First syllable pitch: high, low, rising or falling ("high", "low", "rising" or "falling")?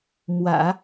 low